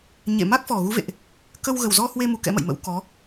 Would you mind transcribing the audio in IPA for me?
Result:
ɲ ḛ˧˨ m a˦˥ k̚ f ɔ˨˩ ɣ u˨˦ v ḛ˧˨ ʔ | k ə˧ w ɣ ə˨˩ w z ɔ˧ h w e˧ m u˨˦ k ɛ̰˧˥ m ə̰˧˨ j m ə̰˧˥ w k ɔ˨˦

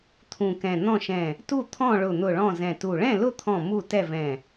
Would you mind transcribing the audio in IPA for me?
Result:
t̪ʰ ũ˧˩ k ɛ̃˧˩ n̪ ɔ̃˥˩ ʃ ɛ̃˧˩ | t u˥˩ t̪ʰ ɔ̃˥˩ ɭ ʊ˧˩ n̪ ʊ˧˩ ɭ ɔ̃˥˩ z ɛ̃˧˩ t u˧˩ ɭ ɛ̃˥˩ l ʊ˥˩ t̪ʰ ɔ̃˧˩ m u˥˩ t ɛ˥˩ v ɛ̃˧˩

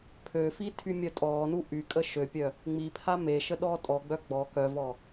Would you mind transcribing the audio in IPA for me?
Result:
pʰ ø f i tʰ y mʲ œ tʼ ɔː n u ʔ y kʼ ə ʃ ø pʲ œ | ŋ͡m i pʰ a m e ʃ ə ɗ ɔː tʼ ɔ ɡ͡b œ ɡ͡b ɔ k œ v ɔ

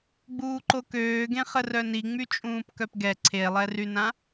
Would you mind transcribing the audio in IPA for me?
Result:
ɡ͡b uː ǃ o k øː ɡ ẽ χ ə r œ n i ŋ͡m y t͡ʃʼ ũː p k œ p ɡ ɛ ǀʰ e lˠ ɛ r y n ã

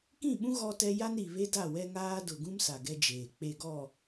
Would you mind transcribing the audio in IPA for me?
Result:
k ĩ˦˨ ɓ ũ˦ ɣ ɔ˦ t ɛ˦ j a˦ n ɾ i˨ β e˦ d a˦˨ w ɛ˦ ŋ aː˦ d ʊ˨ ɡ ũ˦ m s a˨ ɡ ɛ˦ d͡ʒ eː˨ k͡p e˨ ɡ ɔ˨

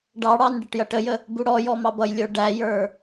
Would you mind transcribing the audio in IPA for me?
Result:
ɖ ɑ ɽ ɑ n ɖ ɪ ʈ j ʌ ʈ ə j ə | b u ɽ ɔ j ɔ m ɑ b ʌ j lʲ ə˞ ɖ æ j ə˞

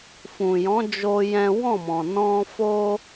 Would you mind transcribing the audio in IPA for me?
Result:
f ũ˨ j ɔ̃˨˦ d͡ʒ o˦ j ɛ̃˦ w ɔ̃˦˨ m ɔ̃˨ n ɔ̃˧ f o˦

